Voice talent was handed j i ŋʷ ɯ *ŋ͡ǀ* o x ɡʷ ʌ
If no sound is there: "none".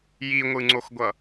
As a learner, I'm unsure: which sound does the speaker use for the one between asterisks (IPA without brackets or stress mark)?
ŋ͡ǀ